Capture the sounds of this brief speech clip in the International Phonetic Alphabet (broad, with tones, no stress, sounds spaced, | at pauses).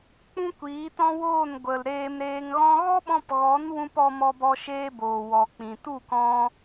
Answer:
k͡p ũ˦ kʷ iː˨˦ t ɔ̃˦ w oː˦˨ n ɡʷ ə˨ l ɾ eː˧ m ɾ eː˧ ŋ ɣ ɔ̃˦ ɣ ɔ˦ ɓ ɔ̃˧ p ɣ ɔ˨˦ n w ũ˧ p ɔ˧ m ɔ˧ b ɔ˧ ʃ eː˧ b oː˨ w ɔ˨ k͡p ĩ˨ t u˦˨ k ɔ̃˧